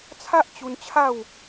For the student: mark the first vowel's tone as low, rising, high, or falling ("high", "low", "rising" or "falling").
high